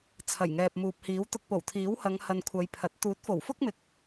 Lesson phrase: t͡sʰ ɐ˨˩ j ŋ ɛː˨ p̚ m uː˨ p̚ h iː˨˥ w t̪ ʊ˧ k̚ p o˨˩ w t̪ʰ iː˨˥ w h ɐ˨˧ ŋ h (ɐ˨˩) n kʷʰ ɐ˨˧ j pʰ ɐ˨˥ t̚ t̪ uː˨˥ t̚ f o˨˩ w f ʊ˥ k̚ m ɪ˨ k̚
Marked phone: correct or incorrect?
incorrect: ɐ˧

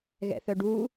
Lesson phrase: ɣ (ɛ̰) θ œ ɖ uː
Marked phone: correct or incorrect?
correct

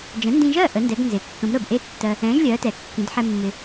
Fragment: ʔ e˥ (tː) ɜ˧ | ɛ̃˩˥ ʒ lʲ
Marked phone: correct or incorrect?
correct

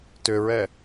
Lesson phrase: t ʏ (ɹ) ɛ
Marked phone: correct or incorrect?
correct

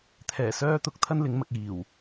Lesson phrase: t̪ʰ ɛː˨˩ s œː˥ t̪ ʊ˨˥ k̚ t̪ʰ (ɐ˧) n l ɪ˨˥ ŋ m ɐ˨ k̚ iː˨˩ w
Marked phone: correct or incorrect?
incorrect: ɐ˥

